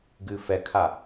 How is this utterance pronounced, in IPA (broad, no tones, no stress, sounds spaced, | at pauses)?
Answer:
ɡ ɨː f ɛ kʰ a